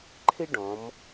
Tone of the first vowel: high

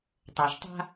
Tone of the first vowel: low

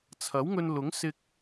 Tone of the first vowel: rising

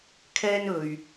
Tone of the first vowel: high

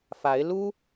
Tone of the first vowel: rising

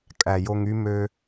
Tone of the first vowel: low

